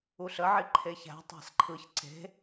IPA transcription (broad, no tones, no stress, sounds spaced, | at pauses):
u ɬ ə ʕ i ǃʰ e ç æ̤ tˤ æ̤ s ǃʰ ɯ ç ǀ e̤